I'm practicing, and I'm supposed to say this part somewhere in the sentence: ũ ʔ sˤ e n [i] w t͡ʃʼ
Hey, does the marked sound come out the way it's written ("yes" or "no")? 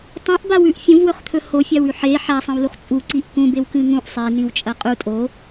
no